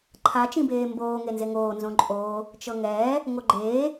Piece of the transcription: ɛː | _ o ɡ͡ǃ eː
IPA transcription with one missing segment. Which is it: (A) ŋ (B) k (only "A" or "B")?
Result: A